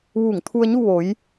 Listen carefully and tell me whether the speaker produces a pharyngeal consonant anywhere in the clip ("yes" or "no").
no